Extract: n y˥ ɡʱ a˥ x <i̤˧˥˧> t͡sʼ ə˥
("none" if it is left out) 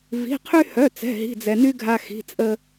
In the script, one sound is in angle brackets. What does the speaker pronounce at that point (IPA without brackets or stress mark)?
i̤˧˥˧